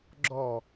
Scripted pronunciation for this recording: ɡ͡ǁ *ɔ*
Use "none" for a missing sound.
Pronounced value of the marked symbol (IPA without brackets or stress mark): ɔ